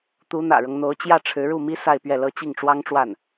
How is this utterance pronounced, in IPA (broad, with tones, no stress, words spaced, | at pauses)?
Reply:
t̪u˧˥n̪ä̰˨˩ɻɤ˦ŋn̪o˧˥ʊ̯ t͡ɕjä˥˩ʈ͡ʂʰɻ̩˧˥ɻu˥˩mi˥ sa˥˧ɪ̯pɥɛ˥˩lɤ˥ t͡ɕi˥˩ŋʈ͡ʂwɑ˥ŋʈ͡ʂwa˥˩n